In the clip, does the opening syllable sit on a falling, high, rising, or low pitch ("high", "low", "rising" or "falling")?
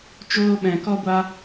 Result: high